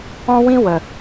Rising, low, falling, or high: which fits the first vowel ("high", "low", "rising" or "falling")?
high